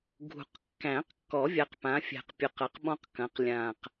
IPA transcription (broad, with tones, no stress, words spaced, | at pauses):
ɡʱṳ˨˩qkːæ̃˨˩˦qkːɔ˨˩˦ vʲa˩˥q pã˩˥fʲæ̤˨˩q pʲɵ˨˩qɐ˩˥q ɓɔ̃˥qkɐ̃˩˥q lʲã˨˩q